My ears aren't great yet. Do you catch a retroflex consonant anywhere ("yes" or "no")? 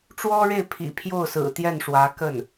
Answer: yes